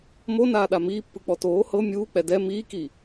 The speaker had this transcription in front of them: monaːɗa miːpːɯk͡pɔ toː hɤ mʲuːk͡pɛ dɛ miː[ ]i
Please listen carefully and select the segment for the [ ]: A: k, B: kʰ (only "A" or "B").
A